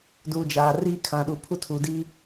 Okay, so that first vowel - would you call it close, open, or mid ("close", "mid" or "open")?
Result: close